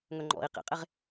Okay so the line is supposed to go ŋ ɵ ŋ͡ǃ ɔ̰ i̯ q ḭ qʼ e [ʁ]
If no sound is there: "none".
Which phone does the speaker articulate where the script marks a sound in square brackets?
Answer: ʁ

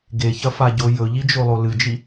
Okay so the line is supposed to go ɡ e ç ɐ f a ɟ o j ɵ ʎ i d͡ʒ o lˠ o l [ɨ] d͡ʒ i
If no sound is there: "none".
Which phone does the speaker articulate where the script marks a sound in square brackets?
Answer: ɨ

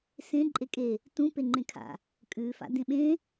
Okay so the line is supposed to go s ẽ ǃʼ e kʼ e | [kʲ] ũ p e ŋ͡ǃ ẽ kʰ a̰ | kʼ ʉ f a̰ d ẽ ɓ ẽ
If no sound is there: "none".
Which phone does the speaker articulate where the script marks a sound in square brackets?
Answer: t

